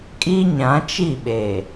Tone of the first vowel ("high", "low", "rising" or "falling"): high